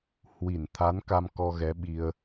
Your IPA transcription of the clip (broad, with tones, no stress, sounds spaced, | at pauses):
h w i˧˩ n t̪ʰ a˨˦ n k a˧ m k ɔ˧ ɣ ɛ˨˦ ɓ i˧ ə̯